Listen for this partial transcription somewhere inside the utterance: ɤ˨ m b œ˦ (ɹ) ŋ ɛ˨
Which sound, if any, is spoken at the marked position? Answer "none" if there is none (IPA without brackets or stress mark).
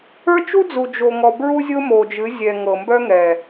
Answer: none